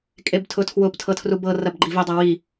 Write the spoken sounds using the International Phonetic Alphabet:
kʼebtʰʊtʰwʊp tʰɤtʰrubɤ rɐbɡ͡ǃivʊ dˤɤwi

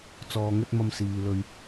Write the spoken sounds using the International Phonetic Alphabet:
t͡sɔː˨ŋɵ˧t̚ mɐ˨m siː˨ lɵ˨ɥ

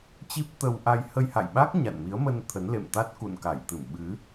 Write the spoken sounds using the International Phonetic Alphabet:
t͡ɕi˦˥p̚t̪ə˧wʔa˧j hə˧jha̰˧˨jɓa˦˥k̚ ɲa̰˧˨nmi˨˦ə̯mə˧n t̪ʰə˨˦nlḛ˧˨mt̪a˦˥t̚ kṵ˧˨nka˧˩jt̪ɨ˧˩m ɓɨ˨˦

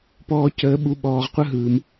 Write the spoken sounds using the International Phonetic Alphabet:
pɔː˦cəː˦ɓu˦ ɓɔː˧ʁqʷə˦ɦɯː˧m

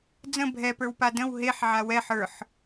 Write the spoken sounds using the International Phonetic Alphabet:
d͡zə̃ bʱɛpə˞wpa də̃w ɦeħ ʕawɛħ ə˞ħ

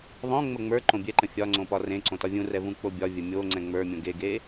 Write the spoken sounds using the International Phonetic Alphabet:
ðˤõ ŋ͡məŋ͡mə˞ǃõ bʲɛǃə̃ fʲɒ ŋ͡ǀõpɒrẽǀõ tɒvʲũrɛ vũk͡pobʲɒvʲə mʲo ŋ͡ǀɛ̃ŋ͡mə˞mʲõ ɡeɡe

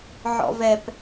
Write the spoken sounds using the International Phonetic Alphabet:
ʕɔ̰vɛp

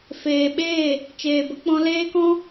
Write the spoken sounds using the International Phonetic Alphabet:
feː˨ɓeː˦˨ | t͡ʃeː˨bə˧k͡pɔ̃˧ leː˦kɔ̃˦

